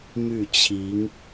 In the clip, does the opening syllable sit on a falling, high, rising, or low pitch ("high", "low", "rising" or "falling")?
falling